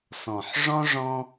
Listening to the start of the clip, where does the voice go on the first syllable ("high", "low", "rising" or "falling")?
low